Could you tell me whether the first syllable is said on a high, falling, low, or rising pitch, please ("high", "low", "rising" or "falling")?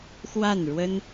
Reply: falling